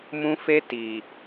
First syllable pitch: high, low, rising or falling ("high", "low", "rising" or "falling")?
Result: high